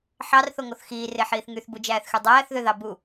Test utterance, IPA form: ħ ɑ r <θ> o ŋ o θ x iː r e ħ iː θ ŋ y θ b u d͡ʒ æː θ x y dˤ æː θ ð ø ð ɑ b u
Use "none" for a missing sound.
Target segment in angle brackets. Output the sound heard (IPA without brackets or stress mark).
θ